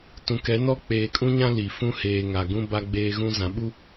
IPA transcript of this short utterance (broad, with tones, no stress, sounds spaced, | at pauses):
t ũ˨ k ɛ˨˦ n ɔ˦ k͡p eː˨ kʼ ũ˦ ɲ ã˦ l i˨ f ũ˦ h eː˨ ŋ a˨ ɡ ũ˦ b a˦ ɡ͡b eː˦ ɣ ũ˦ z ã˨˦ ɓ u˦